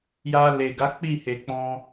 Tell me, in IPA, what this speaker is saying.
j a˧ l e˨ ɡ a˨˦ k͡p i˦˨ h e˨ k͡p ɔ̃˧

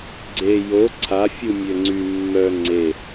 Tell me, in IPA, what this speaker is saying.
ɡ͡ǀ e j o ǀʰ a fʲ u mʲ ø ŋ͡ǀ y mː œ ŋ͡ǀ e

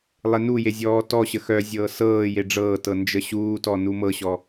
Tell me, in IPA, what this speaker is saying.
lˠ e n u j e zʲ ɔː t ɔ ɕ ə x œ zʲ ɤː s ɤː j e ɖ͡ʐ ɤː t ɤ n d͡ʒ ə ɕ uː t ɔ n u m ɤ ɕ ɔ

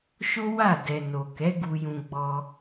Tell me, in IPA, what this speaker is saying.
ʃ o˦ w a˦˨ d ɛ˨ n o˨ k ɛ˨˦ ɡ u˧ j ũ˧ ɡ͡b ɔ˧

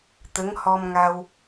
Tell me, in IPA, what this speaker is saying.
t̪ ə˧˥ ŋ h ɔ˧ m ŋ a˧ w

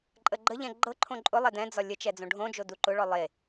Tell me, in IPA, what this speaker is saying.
ǃʼ ə ɡ͡ǃ ə ʎ ɛ̃ ɡ͡ǃ ɤ ǃʰ õ ǃʼ ʊ lˠ ɛ d ɛ̃ d͡z ɒ lʲ ə t͡ʃ ɛ d͡z õ ɖʱ õ d͡ʒ o d u ǃ ʊ ɭ ɔ lˠ e

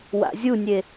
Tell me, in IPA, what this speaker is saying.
w a̰ zʲ u nʲ e

